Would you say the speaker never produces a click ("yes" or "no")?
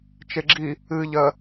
no